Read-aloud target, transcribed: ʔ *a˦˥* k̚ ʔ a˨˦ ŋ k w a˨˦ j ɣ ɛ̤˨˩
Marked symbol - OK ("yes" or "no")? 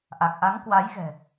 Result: no